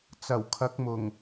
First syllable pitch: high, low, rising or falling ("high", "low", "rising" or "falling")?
low